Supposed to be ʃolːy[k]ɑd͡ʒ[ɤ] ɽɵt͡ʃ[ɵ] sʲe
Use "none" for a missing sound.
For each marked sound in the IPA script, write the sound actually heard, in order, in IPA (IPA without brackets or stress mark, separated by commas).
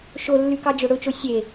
k, ɵ, o